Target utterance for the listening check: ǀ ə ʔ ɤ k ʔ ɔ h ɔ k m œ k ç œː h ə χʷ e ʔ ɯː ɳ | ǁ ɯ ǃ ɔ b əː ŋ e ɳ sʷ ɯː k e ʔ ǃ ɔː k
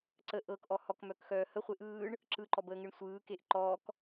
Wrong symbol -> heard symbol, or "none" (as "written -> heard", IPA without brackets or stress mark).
ç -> x